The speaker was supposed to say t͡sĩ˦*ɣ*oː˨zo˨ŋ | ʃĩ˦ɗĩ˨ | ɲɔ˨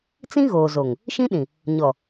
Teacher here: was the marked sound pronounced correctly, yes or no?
yes